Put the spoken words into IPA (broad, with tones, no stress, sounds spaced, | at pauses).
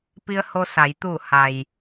p i˧ ə̯ h o˧ s a˩˧ j t̪ uː˧˩ h a˩ j